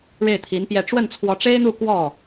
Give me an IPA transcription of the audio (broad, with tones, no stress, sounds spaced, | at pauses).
ɻ e˥˩ ɪ̯ t̪ʰ i˧˥ n p j ɛ˥˧ ʈ͡ʂ w ə˥˩ n t͡sʰ w ɔ˧˥ ʈ͡ʂ e˥ ɪ̯ n̪ u˥˧ k w ɔ˥˩